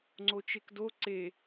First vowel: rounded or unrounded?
rounded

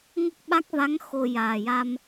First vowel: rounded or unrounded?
unrounded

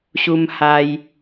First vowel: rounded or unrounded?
rounded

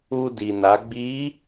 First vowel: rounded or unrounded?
rounded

